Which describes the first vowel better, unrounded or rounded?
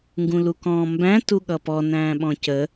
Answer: rounded